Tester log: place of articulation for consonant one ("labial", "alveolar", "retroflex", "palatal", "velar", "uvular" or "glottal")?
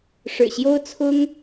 retroflex